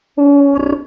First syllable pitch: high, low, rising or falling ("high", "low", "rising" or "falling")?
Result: high